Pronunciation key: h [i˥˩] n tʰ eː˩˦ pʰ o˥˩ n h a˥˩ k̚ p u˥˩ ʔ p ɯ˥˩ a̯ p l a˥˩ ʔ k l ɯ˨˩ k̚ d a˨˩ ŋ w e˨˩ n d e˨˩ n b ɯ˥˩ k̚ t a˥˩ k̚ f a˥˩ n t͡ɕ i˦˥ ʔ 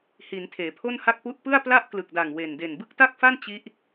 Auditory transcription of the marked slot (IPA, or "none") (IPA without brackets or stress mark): i˩˦